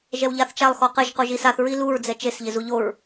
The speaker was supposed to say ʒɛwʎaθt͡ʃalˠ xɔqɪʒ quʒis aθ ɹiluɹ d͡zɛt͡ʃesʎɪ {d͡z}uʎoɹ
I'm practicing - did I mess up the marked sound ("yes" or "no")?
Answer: yes